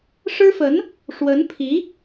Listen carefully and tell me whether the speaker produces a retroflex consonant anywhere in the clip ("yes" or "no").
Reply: yes